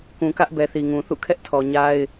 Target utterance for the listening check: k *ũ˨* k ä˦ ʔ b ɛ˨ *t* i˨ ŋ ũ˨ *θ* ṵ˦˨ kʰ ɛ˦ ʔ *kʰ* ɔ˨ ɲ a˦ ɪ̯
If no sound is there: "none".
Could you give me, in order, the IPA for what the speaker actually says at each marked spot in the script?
ũ˨, θ, θ, tʰ

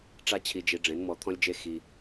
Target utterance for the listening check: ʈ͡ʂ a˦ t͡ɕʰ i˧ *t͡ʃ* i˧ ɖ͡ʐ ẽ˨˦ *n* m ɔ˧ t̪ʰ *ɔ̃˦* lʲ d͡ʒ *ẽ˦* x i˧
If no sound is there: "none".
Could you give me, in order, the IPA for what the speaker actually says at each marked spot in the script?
d͡ʒ, n, ɔ̃˦, e˦

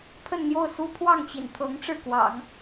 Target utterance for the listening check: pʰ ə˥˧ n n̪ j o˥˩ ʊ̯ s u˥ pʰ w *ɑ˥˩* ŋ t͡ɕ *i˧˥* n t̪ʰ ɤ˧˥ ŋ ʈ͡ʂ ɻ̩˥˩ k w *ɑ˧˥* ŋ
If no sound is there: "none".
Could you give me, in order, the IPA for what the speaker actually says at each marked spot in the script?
ɑ˥˩, ḭ˨˩, ɑ̰˨˩˦

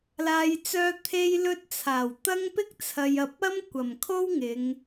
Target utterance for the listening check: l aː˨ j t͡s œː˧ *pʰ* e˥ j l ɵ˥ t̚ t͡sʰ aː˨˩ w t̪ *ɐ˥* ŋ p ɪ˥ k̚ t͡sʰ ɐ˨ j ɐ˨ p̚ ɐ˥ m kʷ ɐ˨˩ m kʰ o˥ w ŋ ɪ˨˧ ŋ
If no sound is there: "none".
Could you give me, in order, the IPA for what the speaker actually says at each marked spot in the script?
t̪ʰ, ɐ˥

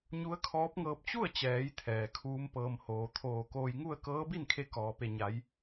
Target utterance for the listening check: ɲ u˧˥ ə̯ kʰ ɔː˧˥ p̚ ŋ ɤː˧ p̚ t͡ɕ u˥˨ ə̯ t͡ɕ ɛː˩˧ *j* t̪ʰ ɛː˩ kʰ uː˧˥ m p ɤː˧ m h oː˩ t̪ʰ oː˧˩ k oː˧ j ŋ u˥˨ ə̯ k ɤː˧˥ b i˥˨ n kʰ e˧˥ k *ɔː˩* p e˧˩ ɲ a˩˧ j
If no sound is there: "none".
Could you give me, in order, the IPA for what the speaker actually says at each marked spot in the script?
j, ɔː˩

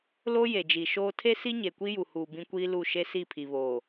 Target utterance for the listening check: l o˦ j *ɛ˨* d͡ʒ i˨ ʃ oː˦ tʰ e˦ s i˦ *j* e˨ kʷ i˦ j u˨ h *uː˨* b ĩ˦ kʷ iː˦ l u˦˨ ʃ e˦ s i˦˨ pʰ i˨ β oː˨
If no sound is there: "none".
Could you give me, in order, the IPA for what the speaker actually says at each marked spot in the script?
e˨, ɲ, uː˨

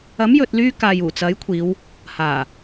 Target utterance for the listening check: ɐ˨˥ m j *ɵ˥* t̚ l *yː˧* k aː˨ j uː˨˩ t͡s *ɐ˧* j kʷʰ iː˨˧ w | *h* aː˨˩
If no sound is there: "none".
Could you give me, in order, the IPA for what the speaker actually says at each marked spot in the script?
ɵ˨, yː˧, ɐ˨˥, h

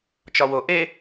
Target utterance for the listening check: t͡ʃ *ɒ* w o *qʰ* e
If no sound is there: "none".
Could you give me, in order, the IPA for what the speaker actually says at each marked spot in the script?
ɒ, ʔ

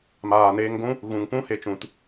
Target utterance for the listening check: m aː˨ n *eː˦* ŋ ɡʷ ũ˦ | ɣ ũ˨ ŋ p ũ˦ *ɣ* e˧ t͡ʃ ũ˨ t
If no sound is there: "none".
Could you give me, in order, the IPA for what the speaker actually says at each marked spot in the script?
eː˧, h

